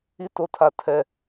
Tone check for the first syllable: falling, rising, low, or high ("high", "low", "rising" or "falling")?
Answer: high